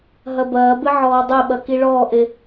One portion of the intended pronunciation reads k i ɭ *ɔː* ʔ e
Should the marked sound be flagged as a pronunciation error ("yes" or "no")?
no